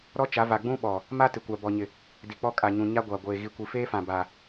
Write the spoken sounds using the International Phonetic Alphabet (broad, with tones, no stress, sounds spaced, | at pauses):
ɾ ɔ˦ t͡ʃ a˨˦ v a˨ ɡ͡b ũ˦ ɓ ɔ˨ | m a˦ t ɪ˨ kʷ a˨ b ɔ˨ ɲ ɪ˨ | d i˨ k͡p ɔ˦ kʼ a˨ ɲ ũ˨ ɲ a˦ ɡʷ a˨ ɡʷ eː˨ ɣ i˨ kʷ i˨ f eː˦ f ã˨ b a˨